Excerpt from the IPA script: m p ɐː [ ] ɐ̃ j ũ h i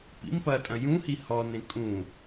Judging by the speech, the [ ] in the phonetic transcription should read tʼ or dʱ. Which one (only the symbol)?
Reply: tʼ